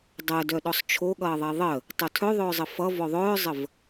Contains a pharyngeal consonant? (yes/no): no